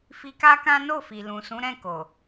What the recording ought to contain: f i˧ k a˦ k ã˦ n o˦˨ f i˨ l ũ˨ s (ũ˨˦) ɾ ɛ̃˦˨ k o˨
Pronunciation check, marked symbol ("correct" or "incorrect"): correct